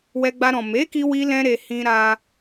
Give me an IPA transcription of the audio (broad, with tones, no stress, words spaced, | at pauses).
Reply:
wɛ˧ɡ͡ba˧ɾɔ̃˨ me˨˦ki˧wi˧lɛ̃˧ ɾe˧hĩ˦ ɾa˧